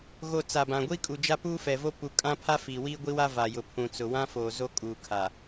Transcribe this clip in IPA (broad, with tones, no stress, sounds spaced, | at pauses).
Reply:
ɣ o˨ t͡s a˨ b ã˨ ɡʷ i˦ kʼ u˨ d͡ʒ a˦ p uː˦ f ɛ˨ v o˦ p u˨ kʼ ã˦ pʰ a˦ f i˨ w iː˦ ɡʷ i˦ w a˦ v a˨ j ʊ˨ pʰ ũ˨ t͡s ʊ˨ w ã˦ f oː˨ z o˦ kʼ uː˨ kʰ a˨